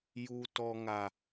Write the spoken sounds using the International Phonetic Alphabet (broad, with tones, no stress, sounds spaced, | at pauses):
j u˨ t ɔ˨ ŋ a˨